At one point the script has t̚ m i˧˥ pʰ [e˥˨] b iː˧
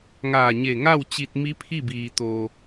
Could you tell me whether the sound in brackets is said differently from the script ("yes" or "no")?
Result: yes